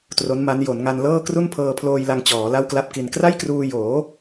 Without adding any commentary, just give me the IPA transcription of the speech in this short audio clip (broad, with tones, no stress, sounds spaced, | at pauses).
t r o˦˥ n m a˦˥ n j o˩˦ n ŋ a˧ n l ɤː˥˩ k r u˥˩ n pʰ ɤː˧ pʰ l oː˧ j l a˧ ŋ t͡ɕ ɔː˩˦ l a˥˩ w k l a˥˩ p̚ k i˧ n k r a˥˩ j k r uː˧ j oː˩˦